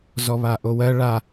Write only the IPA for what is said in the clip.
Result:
z ɔ β a ʔ o w ɜ ɭ a

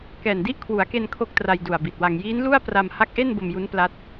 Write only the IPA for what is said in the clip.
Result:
k ɛː˨˩ n d i˦˥ ʔ kʰ w u˩˦ a̯ k e˧ n kʰ o˥˩ k̚ t r a˧ j d u˨˩ a̯ b i˨˩ t̚ w a˧ ŋ j iː˦˥ n l u˥˩ a̯ p r a˧ m h a˦˥ k̚ ʔ e˥˩ n b o˧ m j u˦˥ n p l a˦˥ t̚

